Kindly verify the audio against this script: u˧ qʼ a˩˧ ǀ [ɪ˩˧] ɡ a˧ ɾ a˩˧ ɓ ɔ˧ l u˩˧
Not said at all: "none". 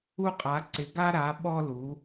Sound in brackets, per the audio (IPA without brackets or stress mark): ɪ˩˧